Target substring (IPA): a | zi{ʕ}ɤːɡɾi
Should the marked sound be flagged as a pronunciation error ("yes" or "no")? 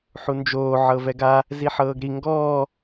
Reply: yes